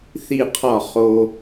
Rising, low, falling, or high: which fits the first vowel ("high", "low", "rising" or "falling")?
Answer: falling